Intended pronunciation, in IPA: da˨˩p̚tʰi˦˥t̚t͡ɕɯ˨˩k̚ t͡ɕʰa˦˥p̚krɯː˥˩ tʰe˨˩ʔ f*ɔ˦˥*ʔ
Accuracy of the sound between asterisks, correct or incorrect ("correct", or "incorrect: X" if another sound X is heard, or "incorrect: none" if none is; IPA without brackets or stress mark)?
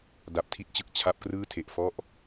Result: incorrect: ɔ˥˩